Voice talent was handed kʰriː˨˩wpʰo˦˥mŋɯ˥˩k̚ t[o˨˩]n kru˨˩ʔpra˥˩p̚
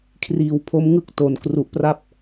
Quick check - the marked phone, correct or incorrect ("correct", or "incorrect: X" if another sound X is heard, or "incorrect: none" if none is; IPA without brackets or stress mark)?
correct